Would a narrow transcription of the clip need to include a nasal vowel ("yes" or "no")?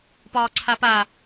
no